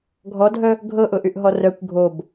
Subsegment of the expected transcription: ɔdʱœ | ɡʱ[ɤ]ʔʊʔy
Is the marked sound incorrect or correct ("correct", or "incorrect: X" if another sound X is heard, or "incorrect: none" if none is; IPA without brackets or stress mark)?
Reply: correct